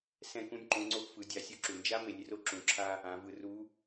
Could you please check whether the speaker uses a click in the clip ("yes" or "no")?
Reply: yes